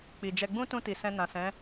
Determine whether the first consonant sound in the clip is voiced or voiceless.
voiceless